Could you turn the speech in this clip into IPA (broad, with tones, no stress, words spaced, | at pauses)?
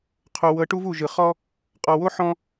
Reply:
qʰo˨wɤ˨˦ ʈu˦vu˨ʒɯ˨ χɔ˦ | qʼɔ˨wo˦ ħɔ̃˦